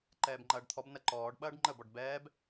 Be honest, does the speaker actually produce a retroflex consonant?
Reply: yes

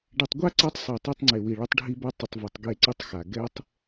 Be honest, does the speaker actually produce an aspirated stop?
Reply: no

